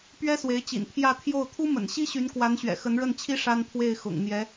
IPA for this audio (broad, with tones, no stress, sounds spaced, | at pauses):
p ɥ ɛ˥ s w e˧˥ ɪ̯ t͡ɕ ḭ˨˩ n pʰ j ä˥˧ t̪ʰ j o˥˩ ʊ̯ t̪ʰ u˥ m ə̰˨˩ n ɕ i˥ ɕ y˧˥ n k w a˧˥ n ɕ ɥ ɛ̰˨˩ x ə˧˥ n ɻ ə˥˩ n t͡ɕʰ i˥ ʂ a˥ n pʰ w e˥˩ ɪ̯ x ʊ̰˨˩ ŋ n̪ j ɛ˧˥